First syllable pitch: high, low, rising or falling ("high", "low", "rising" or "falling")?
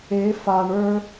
rising